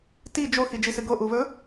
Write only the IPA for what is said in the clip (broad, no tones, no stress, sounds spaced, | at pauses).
t i d͡ʒ o x i d͡ʒ i s ɨ ɡ o ʔ u β ɵ